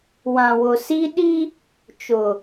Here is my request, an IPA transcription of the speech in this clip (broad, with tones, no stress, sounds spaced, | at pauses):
w ã˨ w ʊ˨ s i˦ ɗ i˦ | t͡ʃ ʊ˨